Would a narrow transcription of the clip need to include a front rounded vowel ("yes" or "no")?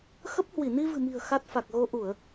no